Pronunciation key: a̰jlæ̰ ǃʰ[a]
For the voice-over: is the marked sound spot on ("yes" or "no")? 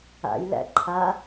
yes